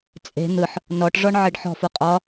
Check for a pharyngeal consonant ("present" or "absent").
present